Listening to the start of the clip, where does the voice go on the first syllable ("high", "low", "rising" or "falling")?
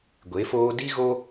rising